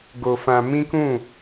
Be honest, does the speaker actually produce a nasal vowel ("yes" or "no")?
yes